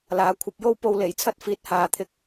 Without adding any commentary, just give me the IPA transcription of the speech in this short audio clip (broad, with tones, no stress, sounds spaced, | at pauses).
l aː˨˥ kʷʰ ɐ˨˥ p̚ j o˥ w p o˧ w l e˨˩ j t͡sʰ ɐ˥ t̚ f iː˨˥ t̚ h aː˨ t̪ʰ ɪ˧ k̚